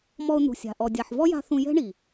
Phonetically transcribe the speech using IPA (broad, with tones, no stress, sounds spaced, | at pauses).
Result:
m ɔ˧ ʊ̯ n̪ ṳ˨ sʲ a̤˨ ʔ ɔ˨ dʲ a˨ ħ v ɔ˦ j a̤˧ θ ũ˧ j ɛ̤˦ ɳ i˨